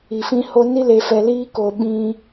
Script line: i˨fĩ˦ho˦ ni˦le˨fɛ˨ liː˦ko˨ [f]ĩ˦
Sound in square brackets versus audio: incorrect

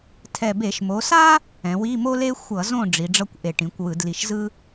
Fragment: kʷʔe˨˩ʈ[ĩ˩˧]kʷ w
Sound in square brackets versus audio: correct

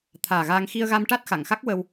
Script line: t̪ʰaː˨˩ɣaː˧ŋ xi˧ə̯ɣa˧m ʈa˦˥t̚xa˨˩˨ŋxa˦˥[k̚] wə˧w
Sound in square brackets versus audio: correct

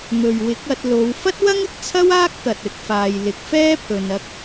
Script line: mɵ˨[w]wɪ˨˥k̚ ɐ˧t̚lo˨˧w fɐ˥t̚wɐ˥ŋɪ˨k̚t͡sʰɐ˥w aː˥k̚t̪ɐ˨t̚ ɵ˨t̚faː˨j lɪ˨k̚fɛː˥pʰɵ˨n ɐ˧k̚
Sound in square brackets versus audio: incorrect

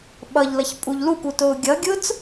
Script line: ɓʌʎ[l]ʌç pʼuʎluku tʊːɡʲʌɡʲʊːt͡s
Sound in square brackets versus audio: correct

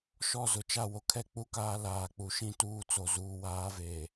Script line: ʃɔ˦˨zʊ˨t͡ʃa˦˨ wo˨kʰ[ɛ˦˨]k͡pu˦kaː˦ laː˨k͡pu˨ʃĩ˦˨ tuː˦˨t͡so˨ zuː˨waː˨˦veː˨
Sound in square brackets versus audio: correct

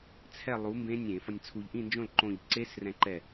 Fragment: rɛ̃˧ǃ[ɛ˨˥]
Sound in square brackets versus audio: incorrect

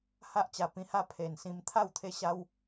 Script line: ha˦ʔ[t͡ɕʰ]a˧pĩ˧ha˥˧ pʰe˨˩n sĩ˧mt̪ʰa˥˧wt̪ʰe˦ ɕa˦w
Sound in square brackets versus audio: incorrect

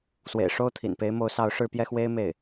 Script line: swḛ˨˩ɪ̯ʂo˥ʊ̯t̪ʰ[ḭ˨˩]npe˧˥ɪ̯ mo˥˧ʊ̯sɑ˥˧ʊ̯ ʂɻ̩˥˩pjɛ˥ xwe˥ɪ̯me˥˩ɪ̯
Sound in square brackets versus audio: correct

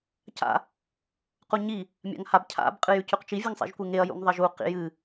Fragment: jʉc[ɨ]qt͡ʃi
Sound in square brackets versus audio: incorrect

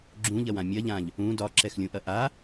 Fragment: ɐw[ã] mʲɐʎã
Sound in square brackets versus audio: correct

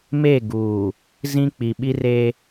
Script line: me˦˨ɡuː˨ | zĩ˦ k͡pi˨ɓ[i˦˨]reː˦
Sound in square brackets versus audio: incorrect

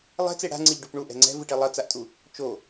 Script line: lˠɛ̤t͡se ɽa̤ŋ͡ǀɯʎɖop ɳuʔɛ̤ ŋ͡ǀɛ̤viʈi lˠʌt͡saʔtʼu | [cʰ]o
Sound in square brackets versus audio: incorrect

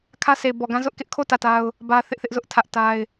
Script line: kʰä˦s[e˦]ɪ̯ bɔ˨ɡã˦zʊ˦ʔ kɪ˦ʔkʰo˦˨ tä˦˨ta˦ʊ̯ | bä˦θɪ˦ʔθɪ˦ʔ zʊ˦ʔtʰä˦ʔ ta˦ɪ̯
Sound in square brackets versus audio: incorrect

